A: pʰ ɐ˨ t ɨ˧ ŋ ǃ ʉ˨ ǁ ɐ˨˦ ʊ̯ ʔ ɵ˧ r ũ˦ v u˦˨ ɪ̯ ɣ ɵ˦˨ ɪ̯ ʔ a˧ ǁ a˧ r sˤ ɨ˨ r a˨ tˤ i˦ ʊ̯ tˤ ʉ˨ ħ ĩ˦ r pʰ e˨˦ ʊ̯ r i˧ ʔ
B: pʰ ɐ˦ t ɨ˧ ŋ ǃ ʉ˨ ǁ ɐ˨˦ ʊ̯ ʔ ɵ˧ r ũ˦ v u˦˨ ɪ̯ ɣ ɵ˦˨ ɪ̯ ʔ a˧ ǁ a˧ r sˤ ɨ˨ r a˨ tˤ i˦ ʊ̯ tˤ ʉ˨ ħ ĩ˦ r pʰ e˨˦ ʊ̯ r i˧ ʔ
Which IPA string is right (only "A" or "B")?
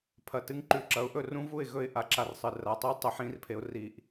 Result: A